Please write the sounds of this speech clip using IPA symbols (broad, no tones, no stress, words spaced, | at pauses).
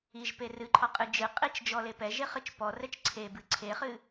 iʒ perɨǃʰɔ qʼɨd͡ʒɨqʼit͡ʃ d͡ʒɔlepɛʒe χɨt͡ʃpɔrɛt͡ʃ ǀʰebɨ ǀʰeχɨ